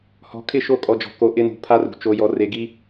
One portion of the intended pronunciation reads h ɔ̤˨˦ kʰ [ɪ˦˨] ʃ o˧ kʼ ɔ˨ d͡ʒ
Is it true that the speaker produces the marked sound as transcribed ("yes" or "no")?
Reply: yes